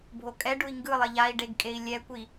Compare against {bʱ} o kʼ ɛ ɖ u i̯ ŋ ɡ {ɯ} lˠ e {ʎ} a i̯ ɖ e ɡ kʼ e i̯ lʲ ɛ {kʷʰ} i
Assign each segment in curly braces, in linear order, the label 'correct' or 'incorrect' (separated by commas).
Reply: correct, correct, correct, incorrect